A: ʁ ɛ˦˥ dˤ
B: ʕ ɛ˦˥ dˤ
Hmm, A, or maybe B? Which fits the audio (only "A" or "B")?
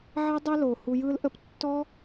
B